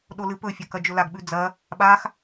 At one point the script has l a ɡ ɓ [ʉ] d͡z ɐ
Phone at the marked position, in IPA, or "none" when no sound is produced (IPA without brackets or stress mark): ʉ